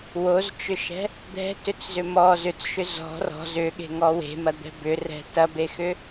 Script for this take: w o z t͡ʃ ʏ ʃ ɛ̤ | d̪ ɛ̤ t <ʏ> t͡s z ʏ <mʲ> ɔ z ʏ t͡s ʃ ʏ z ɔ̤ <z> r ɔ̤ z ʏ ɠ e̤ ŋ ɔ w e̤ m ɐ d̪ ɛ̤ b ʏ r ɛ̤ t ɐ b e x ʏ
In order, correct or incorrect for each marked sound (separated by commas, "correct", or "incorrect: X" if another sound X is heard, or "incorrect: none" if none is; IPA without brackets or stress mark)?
correct, incorrect: m, incorrect: none